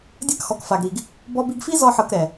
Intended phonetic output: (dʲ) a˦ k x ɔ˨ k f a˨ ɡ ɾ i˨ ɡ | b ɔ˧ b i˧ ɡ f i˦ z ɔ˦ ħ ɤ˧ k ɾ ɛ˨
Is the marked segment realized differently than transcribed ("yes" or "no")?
no